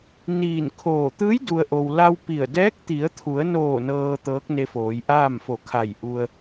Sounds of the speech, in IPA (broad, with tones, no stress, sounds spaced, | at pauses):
n iː˧˩ n kʰ oː˧˩ t̪ ɯː˧˥ j d u˩ ə̯ ʔ o˩ w l a˧ w p i˧˩ ə̯ d ɛː˧˥ k̚ t̪ i˩˧ ə̯ t̪ʰ u˩˧ ə̯ n oː˧˩ n ɤː˧ t̪ ɤː˧˥ k̚ n e˧ f oː˩˧ j ʔ aː˥˨ m f o˧˩ kʰ a˧˩ j ʔ u˧ ə̯